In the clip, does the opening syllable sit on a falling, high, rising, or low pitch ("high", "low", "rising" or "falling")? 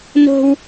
high